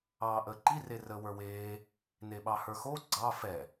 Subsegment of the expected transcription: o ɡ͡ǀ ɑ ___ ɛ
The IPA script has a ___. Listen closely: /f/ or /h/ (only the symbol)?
f